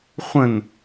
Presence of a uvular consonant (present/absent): present